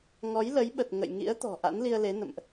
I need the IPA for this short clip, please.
ŋɔ˨˦jlə˨˦jɓə˨˩t̚ ŋə̰˧˨j ŋḭ˧˥ə̯t̪ɔ̤˨˩ ʔa̰˧˥nli˧ə̯le˨˦nə̰˧˨mʔ

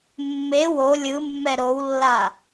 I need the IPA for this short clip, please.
mːe wo lʲɯmːɛ ɾowlːa

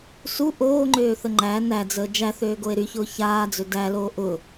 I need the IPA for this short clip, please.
su ʔoːŋ͡ǃøːθə ŋ͡ǃæ næd͡zəː d͡ʒæθøːɡoe̯ ɾyçʊː çaːd͡zø dæloː ʔʊ

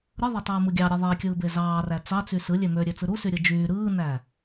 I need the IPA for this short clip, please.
ɾɯðˤætˤɯːmɯ ɡʲɑɾʲe ðˤikʲɯːbe zɑːræ t͡sɑt͡sy sɯlʲe møɾʲøt͡sɯ ɾusyɾʲɯ d͡ʒyː ɾɯːnæ

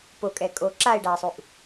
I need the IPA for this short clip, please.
pokʼɛ kʼo ǁaɪ̯ɖaɪ̯sˤuʔ

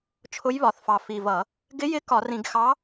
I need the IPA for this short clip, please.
t͡ʃʰʊ˧˥jβɒ˨˩θfɑ˨˩ fi˨˩vʌ˧˩˧ | ɡɪ˧˥jɪ˧˥ kɒ˧˩˧rĩ˧˩˧ɡxɑ˧˥

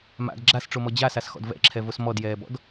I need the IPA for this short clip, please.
ma̰d ɡ͡ǁasʈ͡ʂomɔ d͡ʑasasxɔ̰d vɛ̰ǁʰɛvos mɔdjɛːbɔ̰d

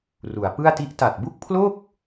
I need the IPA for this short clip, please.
ru˩˦a̯pɯ˥˩a̯ti˥˩ʔ ta˨˩t̚bu˥˩k̚pʰlo˥˩k̚

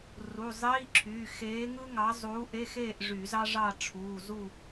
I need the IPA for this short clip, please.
ru˩˧˩zˤiː˧˥˧ǁʰyː˩˧˩ xeː˨˥ŋɯ˥ŋɑ˨˥ zˤuː˨˥ ʔe˧˥˧xeː˥˨ʔʐy˧˩˧ zɑ˥ʐɑ˥˨ ʈ͡ʂʰuː˩˧˩zu˥˨

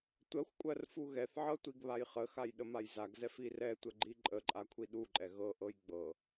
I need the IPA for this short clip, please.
tʷɜxʷkʷʼɜr fuɣɛθʕɤ tʷiɡβajχəxaj ɗəmajzaɡzɛf irɛtʷə ɡ͡ǃiǃʼəǃʼa kʷʰiɗuǃʼɛ ɣɤʔɤj ɡ͡bɤ

